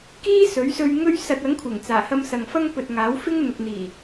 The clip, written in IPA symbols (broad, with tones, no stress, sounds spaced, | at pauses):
k iː˥ s ɵ˨˥ ɥ s ɵ˧ ɥ ŋ ɵ˥ ɥ s ɐ˧ t̚ ɐ˨˥ ŋ kʷʰ ɪ˨˩ ŋ t͡s aː˨˩ h ɐ˧ m s ɐ˨ ŋ f ɐ˥ ŋ p ɵ˨ t̚ ŋ aː˨˥ w f ɪ˥ ŋ n̪ ʊ˨ k̚ n̪ iː˨˩